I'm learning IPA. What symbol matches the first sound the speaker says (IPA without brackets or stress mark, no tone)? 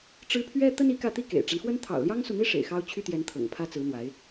ʈ͡ʂ